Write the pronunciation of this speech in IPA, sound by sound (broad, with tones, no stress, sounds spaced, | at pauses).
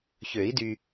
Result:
ç ø˨˩˦ i̯ d y˨